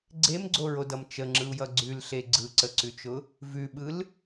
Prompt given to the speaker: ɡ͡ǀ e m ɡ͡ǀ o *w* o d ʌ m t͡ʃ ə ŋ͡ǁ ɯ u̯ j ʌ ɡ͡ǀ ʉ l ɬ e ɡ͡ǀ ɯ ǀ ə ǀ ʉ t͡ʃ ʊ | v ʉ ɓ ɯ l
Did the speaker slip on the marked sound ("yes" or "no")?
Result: yes